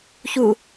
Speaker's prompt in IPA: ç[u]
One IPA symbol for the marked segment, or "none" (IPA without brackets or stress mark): u